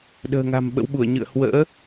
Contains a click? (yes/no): no